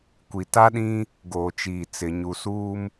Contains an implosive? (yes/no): yes